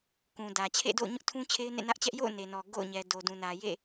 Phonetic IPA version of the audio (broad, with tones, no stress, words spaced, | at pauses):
kũ˨ dä˨ t͡ɕʰḛ˦˨do̰˦˨ʊ̯ɲʊ˦ʔtʰũ˦ t͡ɕʰe˦ɪ̯nḛ˦˨nä˦ʔt͡ɕɛ˦ʔ jo̰˦˨ʊ̯ ne˨nɔ˨ ɡo̰˦˨ʊ̯ɲɛ˨ do˨dũ˨nä˨ jḛ˦˨